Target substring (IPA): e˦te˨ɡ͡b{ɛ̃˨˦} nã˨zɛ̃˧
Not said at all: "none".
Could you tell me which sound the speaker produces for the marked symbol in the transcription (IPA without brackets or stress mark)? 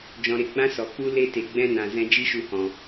ɛ̃˦